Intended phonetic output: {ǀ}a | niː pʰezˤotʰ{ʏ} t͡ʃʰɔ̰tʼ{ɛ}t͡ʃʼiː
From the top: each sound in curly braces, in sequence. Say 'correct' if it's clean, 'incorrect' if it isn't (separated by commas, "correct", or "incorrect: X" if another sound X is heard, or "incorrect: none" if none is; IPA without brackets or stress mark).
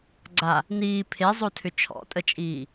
incorrect: ɡ͡ǀ, correct, incorrect: ə